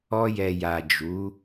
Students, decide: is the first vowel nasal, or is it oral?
oral